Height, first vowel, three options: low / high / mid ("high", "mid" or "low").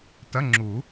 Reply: low